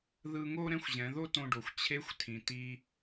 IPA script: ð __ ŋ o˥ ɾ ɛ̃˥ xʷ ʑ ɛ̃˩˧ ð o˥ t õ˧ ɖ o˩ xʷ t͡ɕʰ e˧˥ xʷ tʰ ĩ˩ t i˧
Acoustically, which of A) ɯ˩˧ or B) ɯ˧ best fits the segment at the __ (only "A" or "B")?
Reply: B